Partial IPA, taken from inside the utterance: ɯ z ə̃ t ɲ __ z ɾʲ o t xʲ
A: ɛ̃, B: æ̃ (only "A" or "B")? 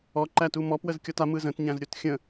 B